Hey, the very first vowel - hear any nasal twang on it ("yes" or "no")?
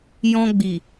yes